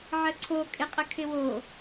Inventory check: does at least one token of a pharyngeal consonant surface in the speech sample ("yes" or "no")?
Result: yes